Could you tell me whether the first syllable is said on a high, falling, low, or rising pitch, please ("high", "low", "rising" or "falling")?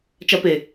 high